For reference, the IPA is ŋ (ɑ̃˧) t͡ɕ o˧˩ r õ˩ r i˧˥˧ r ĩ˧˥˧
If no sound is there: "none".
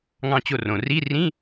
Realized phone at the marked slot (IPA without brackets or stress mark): ɑ̃˧